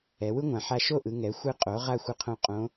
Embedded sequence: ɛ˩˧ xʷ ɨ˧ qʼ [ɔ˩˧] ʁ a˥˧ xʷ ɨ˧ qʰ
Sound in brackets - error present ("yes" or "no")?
yes